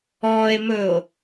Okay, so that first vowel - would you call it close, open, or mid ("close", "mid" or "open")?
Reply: mid